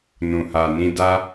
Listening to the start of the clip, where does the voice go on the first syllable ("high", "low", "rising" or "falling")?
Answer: low